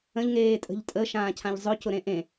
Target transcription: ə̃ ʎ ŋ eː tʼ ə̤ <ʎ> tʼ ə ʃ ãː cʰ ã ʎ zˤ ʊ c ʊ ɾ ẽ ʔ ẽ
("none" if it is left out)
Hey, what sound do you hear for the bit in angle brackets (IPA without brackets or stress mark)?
ʎ